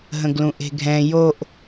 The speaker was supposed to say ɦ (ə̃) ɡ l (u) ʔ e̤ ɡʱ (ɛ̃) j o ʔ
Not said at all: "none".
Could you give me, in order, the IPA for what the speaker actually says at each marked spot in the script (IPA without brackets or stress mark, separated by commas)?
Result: ə̃, ũ, ɛ̃